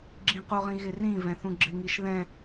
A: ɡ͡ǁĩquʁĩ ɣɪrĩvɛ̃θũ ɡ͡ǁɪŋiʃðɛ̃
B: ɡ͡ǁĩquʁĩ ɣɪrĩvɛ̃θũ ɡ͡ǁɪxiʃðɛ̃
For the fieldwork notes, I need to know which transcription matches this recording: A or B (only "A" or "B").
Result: A